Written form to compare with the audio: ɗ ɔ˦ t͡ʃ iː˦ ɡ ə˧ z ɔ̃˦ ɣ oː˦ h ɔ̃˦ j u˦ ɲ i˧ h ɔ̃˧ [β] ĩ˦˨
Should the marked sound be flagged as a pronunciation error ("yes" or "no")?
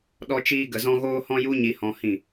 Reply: yes